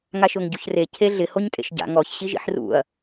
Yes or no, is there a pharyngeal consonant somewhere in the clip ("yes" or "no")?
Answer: yes